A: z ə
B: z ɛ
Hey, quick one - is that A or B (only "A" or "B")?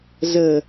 A